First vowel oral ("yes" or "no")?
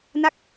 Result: yes